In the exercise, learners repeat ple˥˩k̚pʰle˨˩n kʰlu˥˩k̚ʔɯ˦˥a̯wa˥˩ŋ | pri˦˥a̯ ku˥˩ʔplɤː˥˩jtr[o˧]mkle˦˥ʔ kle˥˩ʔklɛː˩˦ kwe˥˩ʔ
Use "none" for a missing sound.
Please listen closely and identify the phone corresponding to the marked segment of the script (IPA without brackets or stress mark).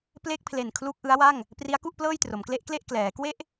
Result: o˩˦